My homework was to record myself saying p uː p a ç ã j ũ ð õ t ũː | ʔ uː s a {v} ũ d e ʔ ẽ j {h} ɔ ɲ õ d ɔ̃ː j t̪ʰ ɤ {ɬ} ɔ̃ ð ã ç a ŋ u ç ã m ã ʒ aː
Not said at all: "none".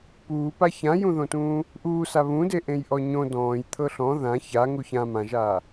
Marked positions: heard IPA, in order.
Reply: β, ʔ, ɬ

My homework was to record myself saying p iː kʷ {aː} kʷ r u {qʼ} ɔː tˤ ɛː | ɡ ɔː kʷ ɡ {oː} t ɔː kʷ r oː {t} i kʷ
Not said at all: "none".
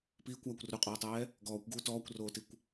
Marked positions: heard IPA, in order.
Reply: aː, qʼ, uː, t

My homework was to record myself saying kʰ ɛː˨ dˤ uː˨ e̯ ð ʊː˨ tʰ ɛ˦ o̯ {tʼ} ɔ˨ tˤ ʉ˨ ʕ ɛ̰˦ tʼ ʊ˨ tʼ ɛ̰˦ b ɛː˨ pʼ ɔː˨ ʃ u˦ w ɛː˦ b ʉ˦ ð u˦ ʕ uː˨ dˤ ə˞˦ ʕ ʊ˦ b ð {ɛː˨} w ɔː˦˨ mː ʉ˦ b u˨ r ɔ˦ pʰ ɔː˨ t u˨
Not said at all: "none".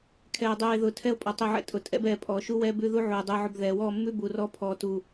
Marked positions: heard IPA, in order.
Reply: pʼ, ɛː˨

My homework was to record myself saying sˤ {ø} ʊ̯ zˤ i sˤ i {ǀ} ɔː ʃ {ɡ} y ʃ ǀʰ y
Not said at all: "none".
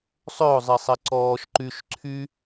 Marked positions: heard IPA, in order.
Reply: ø, ǀ, ǃ

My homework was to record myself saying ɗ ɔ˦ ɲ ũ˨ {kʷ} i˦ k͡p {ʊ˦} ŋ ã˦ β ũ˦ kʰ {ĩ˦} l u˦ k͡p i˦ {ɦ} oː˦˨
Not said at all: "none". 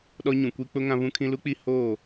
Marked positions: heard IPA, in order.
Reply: kʷ, ʊ˦, ĩ˦, h

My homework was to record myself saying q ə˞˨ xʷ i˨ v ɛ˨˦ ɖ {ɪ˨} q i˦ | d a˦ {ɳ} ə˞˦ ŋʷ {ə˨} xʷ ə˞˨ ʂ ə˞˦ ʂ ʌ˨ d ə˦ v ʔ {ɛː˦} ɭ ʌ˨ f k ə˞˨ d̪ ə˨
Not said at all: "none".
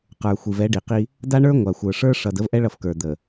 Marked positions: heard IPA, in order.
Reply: i˨, ɳ, a˨, ɛ˦

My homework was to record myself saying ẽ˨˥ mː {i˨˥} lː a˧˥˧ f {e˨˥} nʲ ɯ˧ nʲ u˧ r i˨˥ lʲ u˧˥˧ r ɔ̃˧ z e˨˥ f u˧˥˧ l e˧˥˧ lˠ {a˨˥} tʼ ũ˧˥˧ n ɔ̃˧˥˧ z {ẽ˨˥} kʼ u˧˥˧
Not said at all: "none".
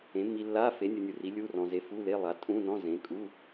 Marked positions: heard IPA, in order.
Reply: i˧, e˨˥, a˨˥, ẽ˨˥

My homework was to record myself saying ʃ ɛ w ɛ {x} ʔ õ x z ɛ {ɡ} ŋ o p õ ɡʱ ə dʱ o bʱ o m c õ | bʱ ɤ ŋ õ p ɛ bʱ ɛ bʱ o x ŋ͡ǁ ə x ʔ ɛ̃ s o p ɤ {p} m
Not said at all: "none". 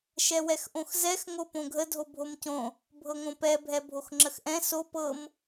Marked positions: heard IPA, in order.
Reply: x, x, none

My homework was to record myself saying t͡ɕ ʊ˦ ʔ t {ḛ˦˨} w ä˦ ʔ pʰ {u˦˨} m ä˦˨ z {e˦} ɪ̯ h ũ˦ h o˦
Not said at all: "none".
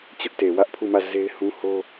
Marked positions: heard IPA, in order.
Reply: e˨, u˦˨, e˦

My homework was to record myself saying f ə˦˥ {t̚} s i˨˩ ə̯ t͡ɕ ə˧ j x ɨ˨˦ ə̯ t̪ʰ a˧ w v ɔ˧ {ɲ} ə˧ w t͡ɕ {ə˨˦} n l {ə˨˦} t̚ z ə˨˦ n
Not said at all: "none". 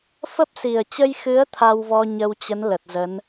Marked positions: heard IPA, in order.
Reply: p̚, ɲ, ə˨˦, ə˨˩

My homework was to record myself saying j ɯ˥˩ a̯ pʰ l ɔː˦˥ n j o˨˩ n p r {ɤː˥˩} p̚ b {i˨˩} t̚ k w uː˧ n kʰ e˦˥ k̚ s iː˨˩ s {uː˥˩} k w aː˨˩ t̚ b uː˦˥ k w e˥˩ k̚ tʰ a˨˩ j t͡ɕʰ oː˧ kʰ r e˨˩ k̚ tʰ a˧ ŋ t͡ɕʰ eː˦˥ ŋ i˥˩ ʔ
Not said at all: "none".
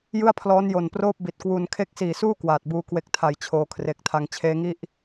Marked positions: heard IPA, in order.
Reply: oː˥˩, i˨˩, uː˥˩

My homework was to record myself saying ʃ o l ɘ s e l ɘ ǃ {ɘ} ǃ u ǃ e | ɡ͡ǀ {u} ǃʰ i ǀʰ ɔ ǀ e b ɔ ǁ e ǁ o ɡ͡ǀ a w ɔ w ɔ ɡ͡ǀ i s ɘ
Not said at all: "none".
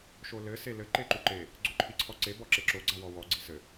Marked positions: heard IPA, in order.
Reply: e, o

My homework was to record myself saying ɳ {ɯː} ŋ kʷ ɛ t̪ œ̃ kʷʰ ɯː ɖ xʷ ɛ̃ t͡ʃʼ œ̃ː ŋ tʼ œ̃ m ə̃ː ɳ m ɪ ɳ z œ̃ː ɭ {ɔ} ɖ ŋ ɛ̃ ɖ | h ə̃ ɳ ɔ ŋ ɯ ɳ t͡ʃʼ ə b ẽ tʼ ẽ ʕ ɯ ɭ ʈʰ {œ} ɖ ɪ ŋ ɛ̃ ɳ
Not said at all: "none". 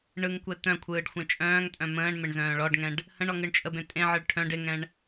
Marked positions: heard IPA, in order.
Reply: ɯ, ɔ, œ̃

